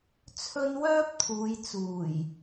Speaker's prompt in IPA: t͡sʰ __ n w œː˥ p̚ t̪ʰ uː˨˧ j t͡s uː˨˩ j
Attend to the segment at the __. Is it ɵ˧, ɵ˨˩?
ɵ˧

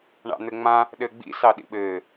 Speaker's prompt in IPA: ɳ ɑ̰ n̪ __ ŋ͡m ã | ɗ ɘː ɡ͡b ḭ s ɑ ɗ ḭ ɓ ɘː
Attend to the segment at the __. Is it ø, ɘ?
ɘ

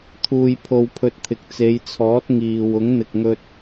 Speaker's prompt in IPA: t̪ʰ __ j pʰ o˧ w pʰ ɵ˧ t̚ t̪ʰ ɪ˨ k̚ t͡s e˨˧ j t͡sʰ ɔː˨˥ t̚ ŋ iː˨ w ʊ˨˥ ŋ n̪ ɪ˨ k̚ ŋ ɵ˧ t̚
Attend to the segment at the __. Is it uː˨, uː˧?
uː˧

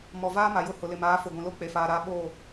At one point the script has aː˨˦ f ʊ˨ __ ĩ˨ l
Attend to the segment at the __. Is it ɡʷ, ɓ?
ɡʷ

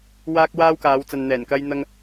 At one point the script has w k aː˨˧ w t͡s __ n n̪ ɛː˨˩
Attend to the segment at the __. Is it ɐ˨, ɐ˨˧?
ɐ˨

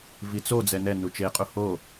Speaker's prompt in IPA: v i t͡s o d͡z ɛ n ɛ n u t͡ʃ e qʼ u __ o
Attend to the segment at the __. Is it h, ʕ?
h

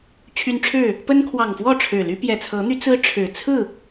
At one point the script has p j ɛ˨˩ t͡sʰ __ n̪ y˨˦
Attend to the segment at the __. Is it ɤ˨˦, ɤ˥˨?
ɤ˨˦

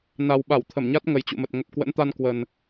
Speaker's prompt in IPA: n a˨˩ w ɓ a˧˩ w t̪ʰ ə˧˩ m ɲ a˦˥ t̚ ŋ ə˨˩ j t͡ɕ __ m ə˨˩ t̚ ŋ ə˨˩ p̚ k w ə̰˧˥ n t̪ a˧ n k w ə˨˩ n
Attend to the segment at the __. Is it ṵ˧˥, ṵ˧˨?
ṵ˧˨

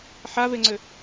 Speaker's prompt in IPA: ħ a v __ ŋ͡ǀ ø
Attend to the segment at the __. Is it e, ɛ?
e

